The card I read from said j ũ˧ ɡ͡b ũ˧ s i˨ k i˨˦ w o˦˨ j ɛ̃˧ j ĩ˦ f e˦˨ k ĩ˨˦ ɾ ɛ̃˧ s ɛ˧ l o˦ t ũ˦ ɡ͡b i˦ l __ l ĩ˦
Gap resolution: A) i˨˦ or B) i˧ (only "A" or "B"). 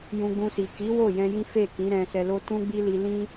B